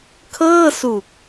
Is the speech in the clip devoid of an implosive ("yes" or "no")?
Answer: yes